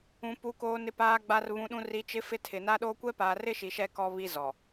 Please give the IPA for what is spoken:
ũ˨ pu˨ koː˨nɪ˨paː˨ɡ͡ba˨r βũ˨ɗũ˨ri˨ t͡ʃɪ˨˦ fɪ˦tʰɪ˨ na˦ɗoː˦ kʷɛ˦paː˨rɪ˦ʃi˨ ʃɛ˦ kɔ˦βi˦zɔ˨

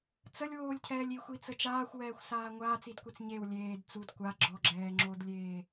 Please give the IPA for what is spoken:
t͡səlʲwoːlʲcʰɛːlʲ ixʷit͡sə t͡ʃaːxʷwɛːxʷsaː ŋʷaːt͡sidkʷɛt͡s ɲew lʲeːd t͡sud kʷa ɡ͡ǁɔɡ͡ǁɛːŋ͡ǁodlʲeː

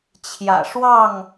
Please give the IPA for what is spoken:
t͡ɕʰjä̰˨˩ʂwɑ˥˨ŋ

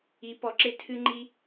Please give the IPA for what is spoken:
i˨˦pɔ˨˦ǁe˧ tʰɨ˦ŋ͡ǃi˦

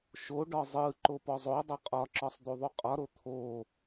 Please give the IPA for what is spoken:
ʃoɖɒ zˤɯ ǃopɔzˤodˤo qʼɒǁɒsˤ d̪uðˤuqʼɒɾo t̪ʰo

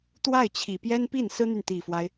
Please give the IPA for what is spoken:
t̪wa˥˩ɪ̯t͡ɕʰi˨˩ pjɛ˥npi˥˩nsɹ̩˥n̪y˨n t̪i˨˩fwa˦ɪ̯

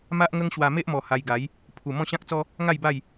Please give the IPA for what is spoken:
ma˦ʔŋə˦ŋ ɕwa˧me˦ʔmɔ˨˩ ha˧jɡa˨˦j | pʰu˨˩ mɔ̃˥˧ɕã˦k̚t͡sɔ˦ | ŋa˥˧jba˥˧j

